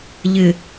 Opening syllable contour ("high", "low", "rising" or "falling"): low